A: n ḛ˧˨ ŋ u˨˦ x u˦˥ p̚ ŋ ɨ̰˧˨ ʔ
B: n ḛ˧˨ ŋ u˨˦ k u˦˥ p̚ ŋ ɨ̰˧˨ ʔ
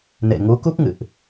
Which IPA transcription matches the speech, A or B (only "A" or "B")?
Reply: B